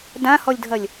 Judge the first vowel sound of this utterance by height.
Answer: low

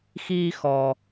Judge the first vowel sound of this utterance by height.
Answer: high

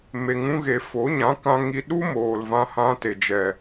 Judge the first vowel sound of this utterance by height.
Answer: mid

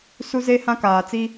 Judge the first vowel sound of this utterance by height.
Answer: high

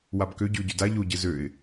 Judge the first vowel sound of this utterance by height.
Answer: low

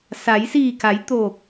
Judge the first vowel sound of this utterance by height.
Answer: low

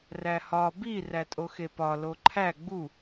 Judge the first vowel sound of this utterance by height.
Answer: low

